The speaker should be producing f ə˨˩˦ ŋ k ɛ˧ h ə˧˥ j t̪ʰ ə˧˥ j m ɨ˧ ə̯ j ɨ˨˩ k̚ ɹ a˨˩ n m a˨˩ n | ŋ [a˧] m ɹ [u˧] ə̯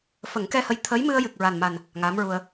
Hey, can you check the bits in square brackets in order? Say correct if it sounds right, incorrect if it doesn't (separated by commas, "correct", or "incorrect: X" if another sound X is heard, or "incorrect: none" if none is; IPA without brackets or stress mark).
incorrect: a˧˥, correct